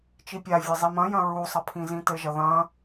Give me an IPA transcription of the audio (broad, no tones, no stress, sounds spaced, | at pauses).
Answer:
t͡ʃ i pʲ a vʲ e zˤ i m ɐ̃ j ɐ̃ ɹ u sˤ ɐ pʰ ĩ z ĩ t ɘ ʒ ɐ ð ɐ̃